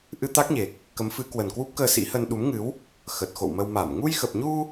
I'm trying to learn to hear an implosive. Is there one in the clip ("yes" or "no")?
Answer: yes